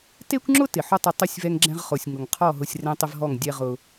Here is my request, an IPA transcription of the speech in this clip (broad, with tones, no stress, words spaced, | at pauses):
te˦kʷŋ͡ǁʊ˦ tɪ˨ħʊ˦tˤɪ˧ tˤʊ˦˨sʲvɛ˧ŋɡ͡ǁɛ̃˧ʁχo˨sʲ ŋʊ˨ŋqʰɔ˦˨ɦʊ˧sʲ rẽ˦tˤɪ˦vɦɔ˦˨ŋ dʲɛ˦ʁʊ˧